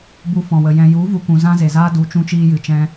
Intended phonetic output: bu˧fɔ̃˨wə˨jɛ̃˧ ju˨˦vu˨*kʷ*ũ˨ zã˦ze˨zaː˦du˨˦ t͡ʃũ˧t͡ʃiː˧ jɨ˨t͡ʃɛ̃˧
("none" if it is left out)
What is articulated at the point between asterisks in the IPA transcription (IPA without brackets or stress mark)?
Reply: kʷ